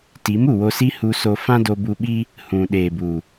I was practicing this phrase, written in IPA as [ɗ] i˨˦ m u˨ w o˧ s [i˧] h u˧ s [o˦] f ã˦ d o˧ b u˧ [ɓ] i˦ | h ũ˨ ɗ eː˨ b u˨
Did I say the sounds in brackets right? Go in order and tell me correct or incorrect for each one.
incorrect, incorrect, incorrect, correct

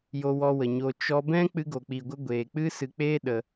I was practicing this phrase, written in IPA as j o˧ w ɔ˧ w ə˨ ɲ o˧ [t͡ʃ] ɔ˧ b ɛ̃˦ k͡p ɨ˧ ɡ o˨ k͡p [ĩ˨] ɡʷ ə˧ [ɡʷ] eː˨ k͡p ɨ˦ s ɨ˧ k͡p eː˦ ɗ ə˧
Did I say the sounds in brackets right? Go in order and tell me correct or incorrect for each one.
correct, incorrect, correct

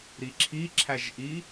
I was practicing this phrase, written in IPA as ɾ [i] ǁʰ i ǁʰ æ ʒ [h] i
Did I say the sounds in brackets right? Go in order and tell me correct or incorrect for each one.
correct, incorrect

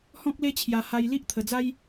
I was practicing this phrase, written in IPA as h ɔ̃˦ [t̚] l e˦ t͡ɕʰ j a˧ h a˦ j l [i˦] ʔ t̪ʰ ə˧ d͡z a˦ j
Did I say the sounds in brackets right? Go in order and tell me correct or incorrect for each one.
incorrect, correct

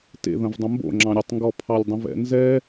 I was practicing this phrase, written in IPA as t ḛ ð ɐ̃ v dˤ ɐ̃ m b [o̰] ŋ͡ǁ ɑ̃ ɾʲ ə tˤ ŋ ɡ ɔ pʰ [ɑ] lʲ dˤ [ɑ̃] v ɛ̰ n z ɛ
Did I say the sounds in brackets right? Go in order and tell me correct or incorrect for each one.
correct, correct, incorrect

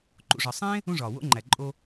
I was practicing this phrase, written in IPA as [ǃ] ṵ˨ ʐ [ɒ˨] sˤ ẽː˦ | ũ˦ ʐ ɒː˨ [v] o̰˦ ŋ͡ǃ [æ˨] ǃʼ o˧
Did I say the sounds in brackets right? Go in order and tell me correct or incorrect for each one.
correct, correct, incorrect, correct

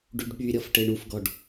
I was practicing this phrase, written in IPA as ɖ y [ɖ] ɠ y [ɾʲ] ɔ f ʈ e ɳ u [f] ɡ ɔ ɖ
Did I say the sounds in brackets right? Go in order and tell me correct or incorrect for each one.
correct, correct, correct

